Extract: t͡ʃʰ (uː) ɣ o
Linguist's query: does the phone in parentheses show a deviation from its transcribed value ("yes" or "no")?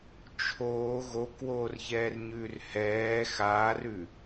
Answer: yes